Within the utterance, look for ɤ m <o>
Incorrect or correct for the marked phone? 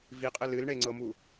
incorrect: u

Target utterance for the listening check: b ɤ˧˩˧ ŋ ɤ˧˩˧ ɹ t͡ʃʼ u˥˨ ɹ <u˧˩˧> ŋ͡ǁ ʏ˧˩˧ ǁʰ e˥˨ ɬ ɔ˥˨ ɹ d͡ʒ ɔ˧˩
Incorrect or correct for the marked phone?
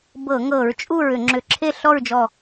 incorrect: ʏ˧˩˧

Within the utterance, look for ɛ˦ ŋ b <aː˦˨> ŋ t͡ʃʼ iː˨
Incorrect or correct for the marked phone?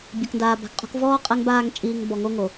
correct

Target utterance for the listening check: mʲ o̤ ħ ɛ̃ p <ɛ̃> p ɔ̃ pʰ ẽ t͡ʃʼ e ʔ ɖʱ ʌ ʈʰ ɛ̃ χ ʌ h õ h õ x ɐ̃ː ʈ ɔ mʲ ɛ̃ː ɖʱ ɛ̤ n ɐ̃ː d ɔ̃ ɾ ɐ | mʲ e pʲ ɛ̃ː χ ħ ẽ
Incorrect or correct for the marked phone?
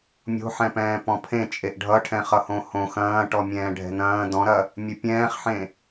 incorrect: ɛ̃ː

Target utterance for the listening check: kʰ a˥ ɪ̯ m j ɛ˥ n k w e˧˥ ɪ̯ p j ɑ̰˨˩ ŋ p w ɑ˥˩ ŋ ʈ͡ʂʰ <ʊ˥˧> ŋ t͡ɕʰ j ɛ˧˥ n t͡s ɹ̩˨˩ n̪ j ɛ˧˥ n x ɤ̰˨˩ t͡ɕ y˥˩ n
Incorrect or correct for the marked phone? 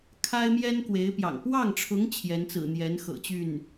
incorrect: ʊ˧˥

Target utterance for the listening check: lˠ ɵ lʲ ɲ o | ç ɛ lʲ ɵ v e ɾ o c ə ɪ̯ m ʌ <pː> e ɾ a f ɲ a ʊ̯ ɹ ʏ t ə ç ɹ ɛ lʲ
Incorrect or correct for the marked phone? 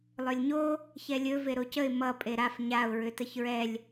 incorrect: pʼ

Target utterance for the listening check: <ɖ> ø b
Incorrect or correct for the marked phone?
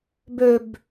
incorrect: b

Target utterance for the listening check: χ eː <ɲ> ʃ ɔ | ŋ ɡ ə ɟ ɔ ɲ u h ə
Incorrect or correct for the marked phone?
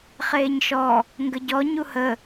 correct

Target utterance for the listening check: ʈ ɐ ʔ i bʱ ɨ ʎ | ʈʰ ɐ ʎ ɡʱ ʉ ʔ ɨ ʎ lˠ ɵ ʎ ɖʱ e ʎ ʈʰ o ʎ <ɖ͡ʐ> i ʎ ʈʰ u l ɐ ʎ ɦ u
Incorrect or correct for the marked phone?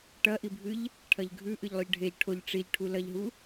incorrect: ʈ͡ʂ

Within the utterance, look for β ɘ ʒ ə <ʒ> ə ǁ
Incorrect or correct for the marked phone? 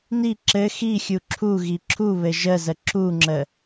incorrect: z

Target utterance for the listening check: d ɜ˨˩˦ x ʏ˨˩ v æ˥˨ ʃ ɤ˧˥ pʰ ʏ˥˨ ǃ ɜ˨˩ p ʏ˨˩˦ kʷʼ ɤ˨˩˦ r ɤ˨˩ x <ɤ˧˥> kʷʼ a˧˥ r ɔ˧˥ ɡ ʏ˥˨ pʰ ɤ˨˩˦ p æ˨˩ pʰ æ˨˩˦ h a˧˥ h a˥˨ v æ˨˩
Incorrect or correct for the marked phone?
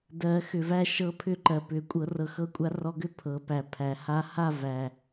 correct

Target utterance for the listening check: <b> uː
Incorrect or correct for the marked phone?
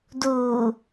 incorrect: d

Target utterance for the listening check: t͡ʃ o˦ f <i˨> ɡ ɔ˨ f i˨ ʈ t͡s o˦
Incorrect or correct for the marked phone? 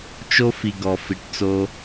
correct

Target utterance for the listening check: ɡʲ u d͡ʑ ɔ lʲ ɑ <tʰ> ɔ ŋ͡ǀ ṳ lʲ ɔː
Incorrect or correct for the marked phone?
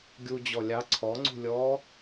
incorrect: ǀʰ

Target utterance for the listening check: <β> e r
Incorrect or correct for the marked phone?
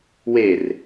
incorrect: w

